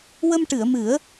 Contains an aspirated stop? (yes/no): no